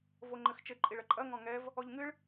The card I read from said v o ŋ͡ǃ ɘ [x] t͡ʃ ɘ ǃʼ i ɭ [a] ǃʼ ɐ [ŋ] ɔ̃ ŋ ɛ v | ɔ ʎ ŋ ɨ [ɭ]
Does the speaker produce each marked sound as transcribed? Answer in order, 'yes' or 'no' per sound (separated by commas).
yes, no, yes, yes